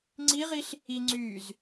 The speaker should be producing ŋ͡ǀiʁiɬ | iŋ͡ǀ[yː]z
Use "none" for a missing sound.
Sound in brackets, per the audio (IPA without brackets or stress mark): yː